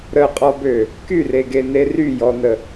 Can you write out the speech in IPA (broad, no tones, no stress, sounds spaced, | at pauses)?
ɾ ə qʼ ɔ b ø | k y r e ɡ e n e r y j ɔ n ə